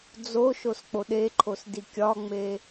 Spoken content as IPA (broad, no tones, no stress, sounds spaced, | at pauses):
d͡z o ʃ o s k͡p o ɗ e ǃʰ o s d i kʲ ɒ ŋ͡m e